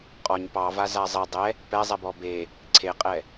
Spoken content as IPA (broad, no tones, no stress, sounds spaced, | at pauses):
qʼ ɔ ɲ p ɑ v a z a zˤ e dˤ ɛ | p ɛ zˤ ɛ b ɔ b e | ǀʰ e qʼ ɛ